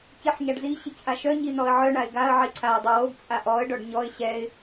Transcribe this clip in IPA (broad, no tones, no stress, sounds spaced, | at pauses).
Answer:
c i ħ ɲ a ɖ z i ɕ i c ʔ a ʃ œ ɲ i n ɔ ə̯ ʕ œ ɳ a ɪ̯ ɡ a ə̯ ʕ i ǀʰ a ə̯ dˤ i w o ɡ t͡sʼ a ʔ ɔ ə̯ ɖ ɔ ɖ ɲ ɔ ɪ̯ ɕ ɛ ɪ̯